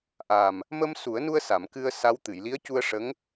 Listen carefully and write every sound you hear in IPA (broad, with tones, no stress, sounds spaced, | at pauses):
ʔ a˨˩ m | m ə˧ m s u˨˩˦ ə̯ n u˧ ə̯ s a˨˩˨ m k ɨ˧ ə̯ s a˧˥ w t̪ ɨ˨˩˨ j l i˧˥ ə̯ c u˧ ə̯ ʂ ə˧˥ ŋ